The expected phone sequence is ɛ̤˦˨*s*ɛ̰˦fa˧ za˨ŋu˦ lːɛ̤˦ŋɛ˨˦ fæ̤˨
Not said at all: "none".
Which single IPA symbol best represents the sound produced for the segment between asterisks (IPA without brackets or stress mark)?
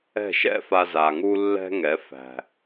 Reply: ʃ